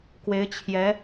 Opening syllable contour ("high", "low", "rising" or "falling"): rising